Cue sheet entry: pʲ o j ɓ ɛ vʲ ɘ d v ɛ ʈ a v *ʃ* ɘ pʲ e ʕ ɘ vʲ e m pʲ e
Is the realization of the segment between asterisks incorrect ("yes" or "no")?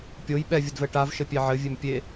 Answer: no